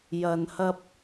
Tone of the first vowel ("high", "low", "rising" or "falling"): low